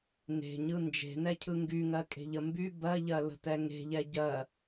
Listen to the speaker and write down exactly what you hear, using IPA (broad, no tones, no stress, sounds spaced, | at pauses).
n e̤ ɲ ɯ n d͡ʒ e̤ n ɛ cʰ ɯ ŋ ɡ y ŋ ɜ kʼ e̤ ʎ ə m b y b ɜ ʎ ɜ l ə̤ t ɛ ŋ e̤ ʎ ɛ ɟ ɜ